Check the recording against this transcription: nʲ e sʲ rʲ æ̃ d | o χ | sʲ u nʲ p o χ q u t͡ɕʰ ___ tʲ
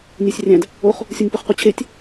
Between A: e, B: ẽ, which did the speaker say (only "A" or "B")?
A